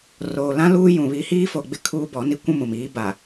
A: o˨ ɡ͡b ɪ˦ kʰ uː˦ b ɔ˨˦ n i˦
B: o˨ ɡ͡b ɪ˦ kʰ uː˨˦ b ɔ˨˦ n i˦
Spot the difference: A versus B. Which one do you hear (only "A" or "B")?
A